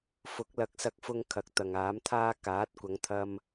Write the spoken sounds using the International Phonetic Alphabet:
fʊ˨˥k̚lɐ˧k̚sɐ˧k̚fʊ˧ŋ kʰɐ˨˥k̚t̪ɐ˨ŋaː˨˥mt̪ʰaː˥ kaː˨˥t̚kʷɐ˨˧ŋt̪ʰɐ˧m

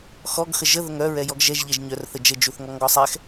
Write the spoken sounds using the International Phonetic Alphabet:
xɔɡ xəʒə ðəŋœ ɹɛjɔɡʒɛʒ ʎɛʒɲœr θəd͡ʒə d͡ʒuθŋɔŋɡɔsˤɛx

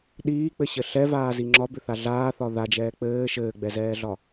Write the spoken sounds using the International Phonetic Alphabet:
ɗiːk͡pɘɕɘ ɬɛvaːzi ŋ͡ǁɒbʏθa ɮaːθɒ ðad͡ʒɛː k͡pɘː ʃɘːɡ͡bɛzɛːɮɒ

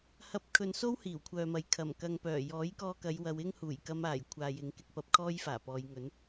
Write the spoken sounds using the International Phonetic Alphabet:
hɐ˧p̚ kʰɵ˨nso˥w hiː˨˩wkʷʰœː˨mɐ˨˧j kʰɐ˨˩mkɐ˧ŋpœː˨˩ jɔː˨˥jkɔː˧kɐ˨˧jwɐ˨˧w ɪ˥ŋ huː˨˩jkɐ˧maː˨˩j kʷʰaː˨jɪ˨˧ŋ kɪ˧k̚pɐ˨˥p̚kʰɔː˥j faː˨˩pɔː˨˧jŋɵ˨˥n

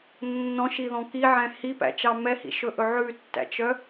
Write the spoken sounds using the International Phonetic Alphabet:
nːɔ̃ʃiðɔ̃ kiʕɛ̃ hipæ̰t͡ʃɑ mɛhḭʃɵʔɵ ʕʉtːæ̰t͡ʃœ

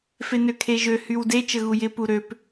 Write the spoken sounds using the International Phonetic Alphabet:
fenøkʰeʒø hywde t͡ʃəɣujɪ puɾøp

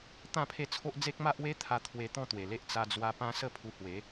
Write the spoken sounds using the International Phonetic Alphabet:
t̪ã˥˧pʰe˥˧t͡sʰo˦ʔ d͡ze˦k̚ ma˦ʔwe˦t̪ʰa˧ t̪ʰwe˧t̪ɔ̃˥˧t̪we˨˩le˦ʔ t͡sa˧d͡zwa˧ pã˦ sə˥˧pʰu˧hwe˨˦

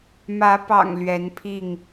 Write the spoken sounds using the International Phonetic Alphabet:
mä˨˦pɑ̰˨˩ŋ lɥɛ˨˦npʰi˥˨ŋ

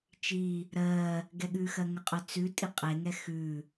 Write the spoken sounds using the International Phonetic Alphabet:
t͡ʃi | ɾɜ | ɡɛɠʉxɜ ŋəqʼœ t͡sʉ tʼiqʼeŋɛ xʉ

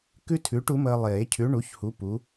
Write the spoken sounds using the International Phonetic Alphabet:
kʉ˥tʰʉ˨˥ʈ u˨˥məː˧lˠeː˨˩˦ cʰʉ˨˥ɳu˨˥çhu˨˥ pu˨˥

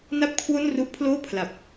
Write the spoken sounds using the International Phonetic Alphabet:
na˥˩p̚kʰwo˥˩nru˦˥ʔpʰloː˥˩ pʰla˨˩p̚

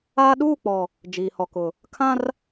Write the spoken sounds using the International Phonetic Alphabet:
aː˦ ɗuː˦˨k͡pɔ˨ | d͡ʒiː˨hɔ˨kʊ˨ | kʰã˦r

